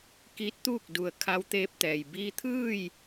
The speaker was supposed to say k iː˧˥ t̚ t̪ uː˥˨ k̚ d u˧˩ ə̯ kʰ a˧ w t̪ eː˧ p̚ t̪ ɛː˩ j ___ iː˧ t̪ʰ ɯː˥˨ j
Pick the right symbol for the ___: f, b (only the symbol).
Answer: b